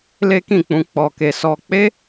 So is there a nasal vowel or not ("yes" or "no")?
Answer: yes